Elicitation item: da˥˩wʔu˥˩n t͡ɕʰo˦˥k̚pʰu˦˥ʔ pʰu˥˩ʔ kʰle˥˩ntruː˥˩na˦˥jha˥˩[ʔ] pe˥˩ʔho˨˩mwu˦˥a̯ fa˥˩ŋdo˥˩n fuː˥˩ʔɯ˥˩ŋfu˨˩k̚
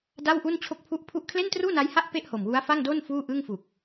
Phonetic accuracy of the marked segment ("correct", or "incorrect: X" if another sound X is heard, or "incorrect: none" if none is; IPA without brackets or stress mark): correct